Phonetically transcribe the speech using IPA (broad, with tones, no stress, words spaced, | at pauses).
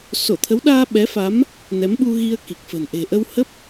so˧˩t̪ʰə˨˦wɗaː˧ ɓɛ˨˦fa˨˦m | nɛ˨˦mɓu˧ɣi˧ə̯ ki˨˩k̚fə̤˨˩n ʔe̤˨˩ʔə˧whə˦˥p̚